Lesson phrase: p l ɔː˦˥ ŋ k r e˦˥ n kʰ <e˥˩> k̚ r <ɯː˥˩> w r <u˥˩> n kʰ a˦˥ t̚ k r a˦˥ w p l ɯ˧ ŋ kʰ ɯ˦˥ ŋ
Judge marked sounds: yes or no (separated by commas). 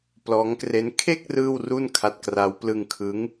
yes, yes, yes